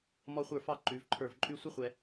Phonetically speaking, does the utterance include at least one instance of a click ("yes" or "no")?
yes